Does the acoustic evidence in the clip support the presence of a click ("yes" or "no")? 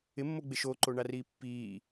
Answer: yes